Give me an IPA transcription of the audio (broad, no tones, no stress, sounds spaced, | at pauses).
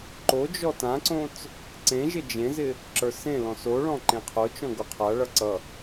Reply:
ǃ o d͡ʒ ɔ t ã ǀ õ t͡s | ǀ ẽ ʒ ɪ d͡ʒ ẽ z ɪ | ǁ ə˞ s ẽ l ɔ̃ s o ɭ ɔ̃ ǃ ẽ qʰ o t͡ʃ ɔ̃ ɡ o qʰ a ɭ ʌ ǀ ʌ